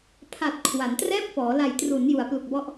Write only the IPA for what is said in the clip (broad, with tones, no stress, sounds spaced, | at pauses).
pʰ a˨˩ t̚ kʰ w a˩˦ n t r ɛː˥˩ p̚ f ɔː˩˦ l a˨˩ j t r u˩˦ n j u˩˦ a̯ p l u˨˩ k̚ b ɔ˦˥ ʔ